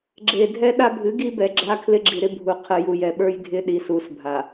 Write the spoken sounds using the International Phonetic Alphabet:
ɡ͡ǁe˨ dʱɛ˦ɗa˦bʱɨ˨˦ɡi˦ bɛ˨ɡ͡ǁa˦ kʰlɪ˦ɡ͡ǁi˨ɾɪ˦bʱu˨ qʰɨ˨ju˨jɛ˨ɓə˞˦j dʱɪ˦ɗi˨ su˨sbʱa˨

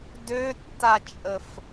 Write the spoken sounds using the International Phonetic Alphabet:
døtːat͡ʃʼəf

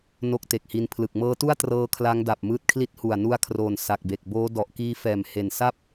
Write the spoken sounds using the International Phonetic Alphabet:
no˦˥k̚ te˨˩k̚hi˧n pʰlɯ˨˩k̚mɤː˦˥tu˥˩a̯ trɤː˦˥kʰla˦˥ŋda˨˩p̚ mɯː˦˥t̚kʰli˦˥t̚ hu˨˩a̯nu˧a̯kʰroː˨˩n sa˨˩k̚be˨˩k̚boː˦˥ dɔ˨˩ʔkiː˦˥fɛː˨˩m he˨˩nsa˥˩p̚

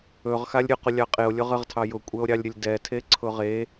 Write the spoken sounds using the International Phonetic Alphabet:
ɵʁ xalʲɾʲʊqʊ lʲɑqʼeo̯ lʲʊʁəʁtʰɑ jʊkʷʼɛo̯ɾʲɑlʲɾʲəlʲ dɛtʰe ǀʰʊʁe

